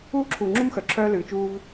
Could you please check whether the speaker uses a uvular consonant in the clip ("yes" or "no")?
no